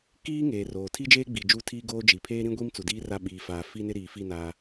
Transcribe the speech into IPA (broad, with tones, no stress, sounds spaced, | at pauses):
k iː˦ ŋ eː˨ r oː˨ tʰ i˦ d͡ʒ eː˦ ɡ͡b i˨ d͡ʒ u˦˨ tʰ iː˦ ɡ oː˦ d͡ʒ i˨ pʰ eː˦ ɾ ĩ˦ ɡʷ i˦ m t͡s u˨ d iː˦ r a˦˨ ɓ iː˨ f aː˨ f i˦ n ɪ˦ ɾ iː˨ f i˦˨ n aː˦